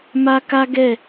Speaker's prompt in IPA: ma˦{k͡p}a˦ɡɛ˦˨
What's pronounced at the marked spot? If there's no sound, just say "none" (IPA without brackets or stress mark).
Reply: k